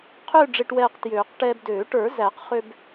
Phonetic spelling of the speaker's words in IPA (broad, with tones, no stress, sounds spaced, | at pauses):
qʰ ø˥˧ ɖ͡ʐ e˧ ʈ w ɛː˧ q t j øː˨˩˦ q ʈ ɛː˧ b d øː˨˩˦ ʈ ə˞˨˩˦ z æ˨˩˦ q χ ø˧ b